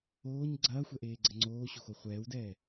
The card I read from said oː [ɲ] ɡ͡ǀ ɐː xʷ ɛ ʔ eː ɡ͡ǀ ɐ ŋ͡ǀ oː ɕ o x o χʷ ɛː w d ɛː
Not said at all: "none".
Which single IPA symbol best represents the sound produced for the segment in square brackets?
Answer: ɲ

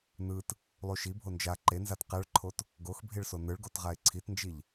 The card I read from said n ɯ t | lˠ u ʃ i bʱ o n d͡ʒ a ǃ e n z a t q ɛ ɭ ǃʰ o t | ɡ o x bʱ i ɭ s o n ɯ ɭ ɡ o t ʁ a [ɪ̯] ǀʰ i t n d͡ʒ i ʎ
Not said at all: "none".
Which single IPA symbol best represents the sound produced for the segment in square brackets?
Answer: ɪ̯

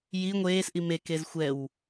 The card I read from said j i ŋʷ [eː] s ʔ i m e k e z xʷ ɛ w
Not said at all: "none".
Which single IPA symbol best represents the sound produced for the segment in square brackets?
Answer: eː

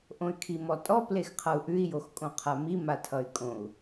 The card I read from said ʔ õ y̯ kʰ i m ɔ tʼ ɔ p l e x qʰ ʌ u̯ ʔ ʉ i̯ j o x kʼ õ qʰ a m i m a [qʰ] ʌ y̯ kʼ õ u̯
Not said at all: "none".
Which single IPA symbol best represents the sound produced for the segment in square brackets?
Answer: tʰ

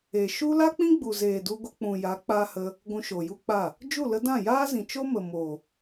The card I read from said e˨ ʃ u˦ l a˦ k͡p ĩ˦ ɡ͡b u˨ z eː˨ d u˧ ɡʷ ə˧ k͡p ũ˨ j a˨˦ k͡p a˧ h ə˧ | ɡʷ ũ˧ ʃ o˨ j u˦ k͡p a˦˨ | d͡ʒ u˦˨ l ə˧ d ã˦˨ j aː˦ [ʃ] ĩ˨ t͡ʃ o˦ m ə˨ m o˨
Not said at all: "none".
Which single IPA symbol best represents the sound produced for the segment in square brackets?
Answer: z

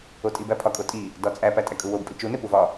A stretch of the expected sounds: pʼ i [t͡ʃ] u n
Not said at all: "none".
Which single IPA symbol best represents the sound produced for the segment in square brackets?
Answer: t͡ʃ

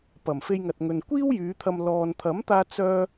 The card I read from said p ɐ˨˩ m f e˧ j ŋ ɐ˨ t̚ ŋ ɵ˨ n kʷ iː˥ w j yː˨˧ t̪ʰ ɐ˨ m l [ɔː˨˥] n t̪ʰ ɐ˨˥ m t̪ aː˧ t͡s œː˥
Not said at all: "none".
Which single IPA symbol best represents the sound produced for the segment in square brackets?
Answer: ɔː˨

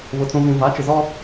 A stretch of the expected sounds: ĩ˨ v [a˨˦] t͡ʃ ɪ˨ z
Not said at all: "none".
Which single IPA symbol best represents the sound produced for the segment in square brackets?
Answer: a˨˦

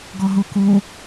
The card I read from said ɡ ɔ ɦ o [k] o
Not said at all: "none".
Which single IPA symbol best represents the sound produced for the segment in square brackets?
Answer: k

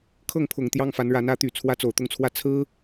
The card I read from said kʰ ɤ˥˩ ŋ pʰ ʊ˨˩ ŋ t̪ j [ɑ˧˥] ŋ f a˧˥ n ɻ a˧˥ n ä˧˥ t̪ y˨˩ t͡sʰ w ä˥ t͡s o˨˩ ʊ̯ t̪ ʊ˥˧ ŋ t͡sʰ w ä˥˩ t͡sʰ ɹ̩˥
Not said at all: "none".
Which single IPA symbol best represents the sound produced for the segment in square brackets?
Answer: ɑ˥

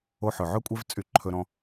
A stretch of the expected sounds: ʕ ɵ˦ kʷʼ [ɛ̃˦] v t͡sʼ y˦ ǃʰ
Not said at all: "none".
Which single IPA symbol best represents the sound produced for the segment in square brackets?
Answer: ɛ˦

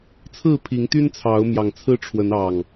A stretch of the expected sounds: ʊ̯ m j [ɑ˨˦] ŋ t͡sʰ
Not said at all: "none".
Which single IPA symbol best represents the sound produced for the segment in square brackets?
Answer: ɑ˨˩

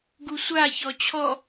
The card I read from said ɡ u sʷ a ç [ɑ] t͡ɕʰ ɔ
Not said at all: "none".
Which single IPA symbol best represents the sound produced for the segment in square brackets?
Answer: ɔ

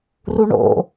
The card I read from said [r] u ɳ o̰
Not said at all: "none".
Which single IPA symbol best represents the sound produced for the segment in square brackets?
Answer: r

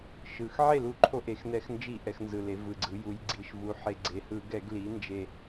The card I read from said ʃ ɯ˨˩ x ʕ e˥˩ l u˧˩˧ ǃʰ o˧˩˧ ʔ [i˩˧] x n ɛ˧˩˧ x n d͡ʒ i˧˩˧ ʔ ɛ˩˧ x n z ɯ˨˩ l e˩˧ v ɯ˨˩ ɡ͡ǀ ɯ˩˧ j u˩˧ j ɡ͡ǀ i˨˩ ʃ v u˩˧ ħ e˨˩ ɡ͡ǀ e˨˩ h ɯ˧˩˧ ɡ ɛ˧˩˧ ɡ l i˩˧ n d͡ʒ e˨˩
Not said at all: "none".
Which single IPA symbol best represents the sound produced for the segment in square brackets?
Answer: e˩˧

